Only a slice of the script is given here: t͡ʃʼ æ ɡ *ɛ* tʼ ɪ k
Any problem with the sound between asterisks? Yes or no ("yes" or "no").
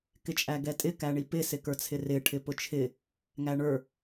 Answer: no